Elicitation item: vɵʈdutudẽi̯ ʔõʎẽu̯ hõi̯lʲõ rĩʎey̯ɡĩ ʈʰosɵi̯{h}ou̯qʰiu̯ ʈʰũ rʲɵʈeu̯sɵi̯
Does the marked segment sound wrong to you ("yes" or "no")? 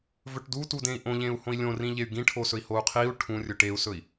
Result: no